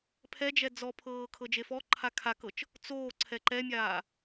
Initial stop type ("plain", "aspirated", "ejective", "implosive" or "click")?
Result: aspirated